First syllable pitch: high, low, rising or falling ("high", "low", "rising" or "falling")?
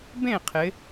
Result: falling